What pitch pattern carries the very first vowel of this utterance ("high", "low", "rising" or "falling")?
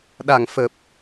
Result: low